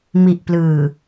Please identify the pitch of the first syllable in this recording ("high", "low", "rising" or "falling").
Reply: low